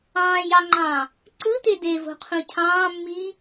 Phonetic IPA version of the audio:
ɑ̃ː j ɑ ŋ͡ǃ ɑ̃ː | ǀ ɯ t e d e v o̤ qʰ ũ cʰ ɑ̃ː mː iː

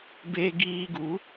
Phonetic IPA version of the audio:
b e˧ ɡ iː˧ ɡ u˨˦

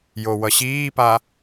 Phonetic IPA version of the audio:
j o w ʌ ɕ iː p a

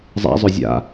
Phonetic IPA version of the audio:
zˤ a̰ zˤ ø zʲ a̰

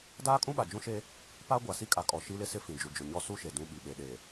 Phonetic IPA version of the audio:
d aː˦ kʼ ũ˦ ɓ a˨ d͡ʒ ũ˦ ʃ e˦ | p a˦ ɡʷ a˨ s i˦ kʼ a˨ kʼ ɔ˨ ʃ i˦ l ɪ˦ s ɪ˦ f ĩ˨ d͡ʒ u˨ d͡ʒ ʊ˨ ɲ ɔ˦ s u˦ ʃ e˨ d ũ˦ ɓ i˨ ɓ e˨ ɗ e˨

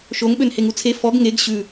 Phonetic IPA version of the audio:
ʃ o ŋ ɓ ø n h e ŋ u t͡sʰ e f ɔ ɡ ŋ e ɡ ɕ ʉ

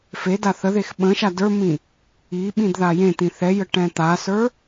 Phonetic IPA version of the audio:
f e d a θ ə ð e x ɓ ə̃ ʃ a d ə˞ m ĩ | i ɓ ĩ d ð a j ẽ t̪ ĩ θ ɛ j ə ʈ ɛ̃ t̪ a s ə˞

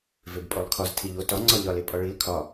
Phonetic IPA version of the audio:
v e b pʼ o lˠ kʰ ɒ z tʰ i ʎ o t ɒ ŋ͡ǀ ɒ ʎ ɒ l e pʼ ɒ ɭ i l kʰ ɒ

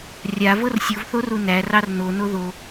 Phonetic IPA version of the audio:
rʲ a v ɤ r sʲ u v θ o r u n æ r ɑ r n o n o ð o

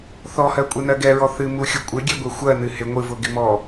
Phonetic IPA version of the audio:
θ ɔ h ɜ kʷʼ e n ɜ ɡ ɛ ɹ ɔ θ ɨ m u xʲ ʊ kʷʼ ɪ ɡʲ ɛ ɡʷ e xʷ ɜ n ɨ h ɪ ŋʷ ɨ v ʊ ɡ ɪ m ɔ

